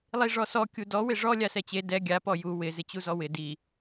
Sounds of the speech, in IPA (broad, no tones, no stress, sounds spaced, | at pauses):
lˠ i ʐ ɔ s ɔ kʲ u d ɔ w ɪ ʐ ɔ lʲ a s ɛ t͡ɕ e d ɛ ɡʲ a p ɔ j u w ɪ z ɪ t͡ɕ u z ɔ w ɪ d i